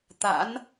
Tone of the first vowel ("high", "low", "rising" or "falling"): rising